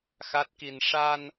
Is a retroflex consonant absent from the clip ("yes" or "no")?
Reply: no